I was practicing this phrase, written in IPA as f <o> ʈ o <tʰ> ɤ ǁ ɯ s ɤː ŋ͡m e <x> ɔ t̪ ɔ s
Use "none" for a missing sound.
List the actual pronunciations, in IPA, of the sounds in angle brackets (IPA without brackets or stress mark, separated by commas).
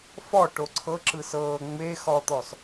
ɔ, ǀʰ, x